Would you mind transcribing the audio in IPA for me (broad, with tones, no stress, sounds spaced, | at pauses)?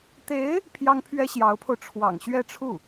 t̪ e˧˥ ɪ̯ | pʰ j ɑ˥ ŋ pʰ ɥ ɛ˥ ɕ j ɑ˧˥ ʊ̯ pʰ o˧ ʊ̯ ʈ͡ʂʰ w ɑ̰˨˩ ŋ ɕ ɥ ɛ˥˧ ʈ͡ʂʰ u˥˩